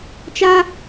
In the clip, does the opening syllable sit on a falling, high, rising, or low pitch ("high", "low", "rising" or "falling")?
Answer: high